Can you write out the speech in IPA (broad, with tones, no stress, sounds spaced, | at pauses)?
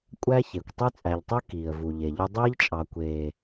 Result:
kʷʼ æ˦ ç e˨ kʷ tˤ y˦ t͡sʼ æ˨ ʎ tˤ y˦ k iː˨ ə̯ v u˨ ʎ e˨ ʎ y˦ dˤ iː˦ ʎ t͡ʃʼ ɑ˨ kʷ eː˨